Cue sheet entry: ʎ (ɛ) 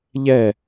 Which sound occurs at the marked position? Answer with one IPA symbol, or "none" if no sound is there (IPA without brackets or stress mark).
ɛ